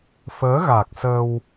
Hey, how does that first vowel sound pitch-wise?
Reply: rising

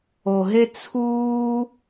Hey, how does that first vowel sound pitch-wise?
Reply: low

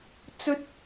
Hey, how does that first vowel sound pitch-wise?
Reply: high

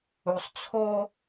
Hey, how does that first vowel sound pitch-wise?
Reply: low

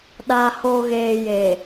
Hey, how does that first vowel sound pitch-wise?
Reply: low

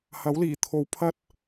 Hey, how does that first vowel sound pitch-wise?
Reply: rising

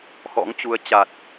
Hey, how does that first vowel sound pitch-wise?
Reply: rising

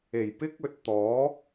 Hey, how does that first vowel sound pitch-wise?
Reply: low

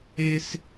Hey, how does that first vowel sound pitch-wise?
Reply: high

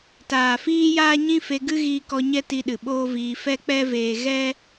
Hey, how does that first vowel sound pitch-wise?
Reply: low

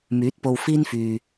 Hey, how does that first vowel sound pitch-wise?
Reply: rising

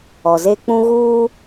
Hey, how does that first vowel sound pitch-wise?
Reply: low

